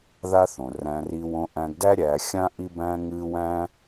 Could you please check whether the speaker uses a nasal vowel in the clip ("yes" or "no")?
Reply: yes